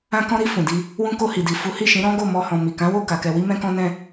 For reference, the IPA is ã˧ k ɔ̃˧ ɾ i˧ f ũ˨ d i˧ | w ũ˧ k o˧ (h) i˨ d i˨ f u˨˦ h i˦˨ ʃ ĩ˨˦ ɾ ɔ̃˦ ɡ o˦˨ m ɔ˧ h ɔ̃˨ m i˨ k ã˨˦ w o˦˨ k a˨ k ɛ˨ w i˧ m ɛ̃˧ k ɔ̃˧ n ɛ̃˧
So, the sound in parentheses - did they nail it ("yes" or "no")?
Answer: yes